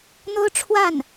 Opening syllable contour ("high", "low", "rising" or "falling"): high